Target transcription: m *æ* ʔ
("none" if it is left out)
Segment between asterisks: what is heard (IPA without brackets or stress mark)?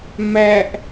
æ